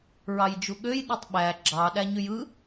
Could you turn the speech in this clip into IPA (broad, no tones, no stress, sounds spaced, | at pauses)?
ɹ ɑ j d͡ʒ u ɠ ø j ɗ e tˤ ɓ æ ɡ͡ǁ ɑ ɗ æ ɲ y j ɯ